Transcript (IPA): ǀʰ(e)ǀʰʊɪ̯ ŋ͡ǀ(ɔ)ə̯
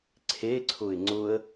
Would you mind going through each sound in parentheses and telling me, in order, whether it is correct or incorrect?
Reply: correct, incorrect

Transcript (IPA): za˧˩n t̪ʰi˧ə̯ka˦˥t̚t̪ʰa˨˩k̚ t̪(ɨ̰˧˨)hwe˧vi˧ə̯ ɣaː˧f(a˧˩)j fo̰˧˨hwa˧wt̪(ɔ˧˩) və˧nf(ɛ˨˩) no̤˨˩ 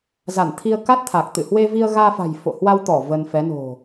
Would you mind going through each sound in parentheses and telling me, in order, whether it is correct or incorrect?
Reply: correct, incorrect, correct, incorrect

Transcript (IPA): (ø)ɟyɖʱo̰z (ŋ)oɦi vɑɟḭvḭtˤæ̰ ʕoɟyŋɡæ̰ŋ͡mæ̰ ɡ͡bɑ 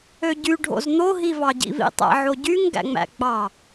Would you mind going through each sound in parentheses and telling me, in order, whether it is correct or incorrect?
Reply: correct, incorrect

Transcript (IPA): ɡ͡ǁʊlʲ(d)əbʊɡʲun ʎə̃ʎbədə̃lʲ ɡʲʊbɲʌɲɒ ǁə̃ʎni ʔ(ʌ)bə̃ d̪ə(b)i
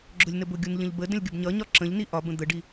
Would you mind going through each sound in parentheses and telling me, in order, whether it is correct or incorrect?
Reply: incorrect, incorrect, incorrect

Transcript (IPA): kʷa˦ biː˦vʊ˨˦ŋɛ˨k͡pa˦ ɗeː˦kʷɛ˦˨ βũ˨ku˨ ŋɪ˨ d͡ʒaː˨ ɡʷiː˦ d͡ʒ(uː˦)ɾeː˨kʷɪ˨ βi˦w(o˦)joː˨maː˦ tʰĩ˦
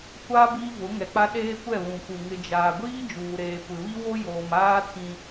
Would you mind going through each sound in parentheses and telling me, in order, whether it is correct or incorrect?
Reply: incorrect, correct

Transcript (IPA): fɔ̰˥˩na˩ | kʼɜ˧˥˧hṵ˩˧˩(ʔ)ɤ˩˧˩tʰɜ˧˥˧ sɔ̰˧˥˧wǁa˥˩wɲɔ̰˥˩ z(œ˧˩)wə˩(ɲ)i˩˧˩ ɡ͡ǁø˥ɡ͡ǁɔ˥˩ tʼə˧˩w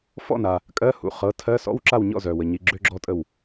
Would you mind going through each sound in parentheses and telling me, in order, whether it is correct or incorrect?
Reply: incorrect, incorrect, correct

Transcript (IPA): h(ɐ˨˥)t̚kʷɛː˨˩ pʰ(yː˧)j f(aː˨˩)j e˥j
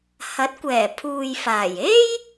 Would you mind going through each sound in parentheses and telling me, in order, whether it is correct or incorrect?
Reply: correct, incorrect, correct

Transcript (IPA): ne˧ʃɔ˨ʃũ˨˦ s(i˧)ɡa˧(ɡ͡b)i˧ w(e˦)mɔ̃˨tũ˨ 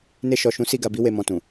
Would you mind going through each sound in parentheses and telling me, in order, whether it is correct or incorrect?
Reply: correct, incorrect, incorrect

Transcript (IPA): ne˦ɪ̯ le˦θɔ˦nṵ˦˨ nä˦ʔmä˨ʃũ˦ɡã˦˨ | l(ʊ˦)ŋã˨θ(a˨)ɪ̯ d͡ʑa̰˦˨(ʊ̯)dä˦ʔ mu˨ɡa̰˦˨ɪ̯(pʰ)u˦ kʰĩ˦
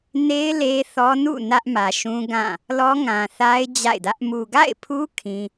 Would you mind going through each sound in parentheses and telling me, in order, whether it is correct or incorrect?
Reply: incorrect, incorrect, incorrect, correct

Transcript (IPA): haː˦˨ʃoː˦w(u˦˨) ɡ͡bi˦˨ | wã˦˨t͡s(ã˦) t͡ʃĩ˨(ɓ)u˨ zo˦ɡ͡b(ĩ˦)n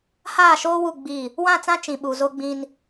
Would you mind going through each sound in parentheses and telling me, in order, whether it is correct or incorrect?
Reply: correct, correct, correct, correct

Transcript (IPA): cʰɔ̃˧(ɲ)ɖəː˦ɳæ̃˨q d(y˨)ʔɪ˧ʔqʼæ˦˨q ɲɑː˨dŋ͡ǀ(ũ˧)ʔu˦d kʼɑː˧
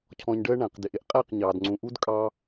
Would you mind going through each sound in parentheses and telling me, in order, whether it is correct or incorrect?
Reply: correct, incorrect, incorrect

